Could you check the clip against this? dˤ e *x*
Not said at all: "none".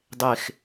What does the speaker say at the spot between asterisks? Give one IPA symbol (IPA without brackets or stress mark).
x